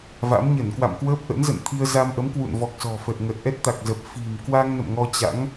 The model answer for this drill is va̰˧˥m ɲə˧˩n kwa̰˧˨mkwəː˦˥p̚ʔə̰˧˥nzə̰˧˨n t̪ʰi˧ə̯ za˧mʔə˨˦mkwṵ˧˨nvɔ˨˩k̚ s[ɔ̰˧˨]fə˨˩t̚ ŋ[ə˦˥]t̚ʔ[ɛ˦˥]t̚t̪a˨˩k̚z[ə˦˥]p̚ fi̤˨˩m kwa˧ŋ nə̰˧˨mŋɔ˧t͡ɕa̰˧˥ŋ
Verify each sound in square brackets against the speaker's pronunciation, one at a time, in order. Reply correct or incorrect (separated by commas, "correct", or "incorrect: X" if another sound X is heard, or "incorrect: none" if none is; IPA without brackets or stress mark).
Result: incorrect: ɔ̤˨˩, incorrect: ə˨˩, correct, incorrect: ə˨˩